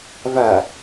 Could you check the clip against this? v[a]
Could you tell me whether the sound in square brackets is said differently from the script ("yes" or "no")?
no